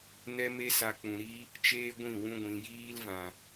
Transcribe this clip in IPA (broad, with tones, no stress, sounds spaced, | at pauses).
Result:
n ɛ˦ m e˦ s a˧ k͡p ũ˨ ɾ i˦ | t͡ʃ eː˦ ɡʷ ĩ˦˨ w ũ˦ ɡʷ ĩ˧ j iː˦ l v ã˨